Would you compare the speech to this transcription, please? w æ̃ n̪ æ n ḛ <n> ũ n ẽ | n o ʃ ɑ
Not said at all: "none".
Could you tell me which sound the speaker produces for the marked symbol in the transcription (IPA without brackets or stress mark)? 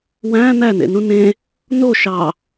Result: n